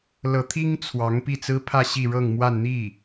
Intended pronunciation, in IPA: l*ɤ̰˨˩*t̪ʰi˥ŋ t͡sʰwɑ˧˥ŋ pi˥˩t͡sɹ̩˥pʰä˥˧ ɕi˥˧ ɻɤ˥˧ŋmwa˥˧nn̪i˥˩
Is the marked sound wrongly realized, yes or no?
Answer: yes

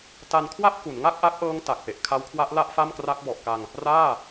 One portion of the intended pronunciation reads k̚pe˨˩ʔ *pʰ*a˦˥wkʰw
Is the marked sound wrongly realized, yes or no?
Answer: yes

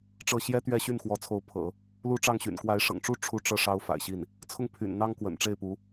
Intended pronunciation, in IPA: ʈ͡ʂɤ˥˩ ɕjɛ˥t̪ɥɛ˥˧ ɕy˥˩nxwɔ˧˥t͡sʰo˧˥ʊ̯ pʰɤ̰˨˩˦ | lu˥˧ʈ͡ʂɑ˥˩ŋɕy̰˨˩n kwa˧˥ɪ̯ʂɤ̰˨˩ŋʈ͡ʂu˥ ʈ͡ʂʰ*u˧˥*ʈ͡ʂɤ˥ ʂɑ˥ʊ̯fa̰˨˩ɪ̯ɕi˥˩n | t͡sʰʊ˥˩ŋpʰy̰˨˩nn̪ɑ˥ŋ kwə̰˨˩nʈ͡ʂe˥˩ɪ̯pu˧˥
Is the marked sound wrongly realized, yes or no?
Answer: yes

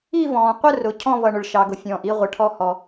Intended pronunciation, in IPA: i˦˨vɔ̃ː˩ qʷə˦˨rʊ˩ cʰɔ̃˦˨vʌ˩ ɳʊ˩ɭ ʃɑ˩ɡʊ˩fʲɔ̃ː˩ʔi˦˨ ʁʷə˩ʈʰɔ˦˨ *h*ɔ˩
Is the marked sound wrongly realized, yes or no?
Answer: no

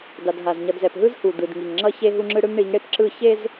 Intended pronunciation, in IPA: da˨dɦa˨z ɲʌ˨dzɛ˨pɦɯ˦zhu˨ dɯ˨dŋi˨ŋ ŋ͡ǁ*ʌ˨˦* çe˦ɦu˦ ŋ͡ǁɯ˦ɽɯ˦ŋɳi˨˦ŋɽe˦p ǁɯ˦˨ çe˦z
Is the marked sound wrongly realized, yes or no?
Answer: yes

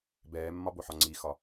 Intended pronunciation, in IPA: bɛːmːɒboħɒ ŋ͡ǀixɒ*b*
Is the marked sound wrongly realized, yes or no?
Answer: yes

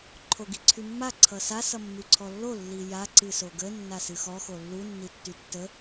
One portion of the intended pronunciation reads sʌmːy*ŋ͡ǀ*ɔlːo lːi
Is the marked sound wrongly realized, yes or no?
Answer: yes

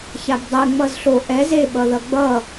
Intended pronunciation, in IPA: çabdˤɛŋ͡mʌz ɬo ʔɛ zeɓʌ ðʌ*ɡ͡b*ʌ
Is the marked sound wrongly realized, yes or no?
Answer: no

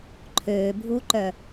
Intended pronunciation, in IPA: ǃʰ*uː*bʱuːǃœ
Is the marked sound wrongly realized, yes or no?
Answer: yes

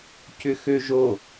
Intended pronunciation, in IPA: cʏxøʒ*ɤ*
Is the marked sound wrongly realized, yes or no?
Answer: yes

